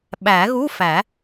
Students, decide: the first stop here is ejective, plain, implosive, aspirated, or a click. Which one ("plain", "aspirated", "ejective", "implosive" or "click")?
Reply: implosive